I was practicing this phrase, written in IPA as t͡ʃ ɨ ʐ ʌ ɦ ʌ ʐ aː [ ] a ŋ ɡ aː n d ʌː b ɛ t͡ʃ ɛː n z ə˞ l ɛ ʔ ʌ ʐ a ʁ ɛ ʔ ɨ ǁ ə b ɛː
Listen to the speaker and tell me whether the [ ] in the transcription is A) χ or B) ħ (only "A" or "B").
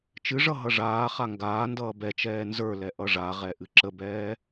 A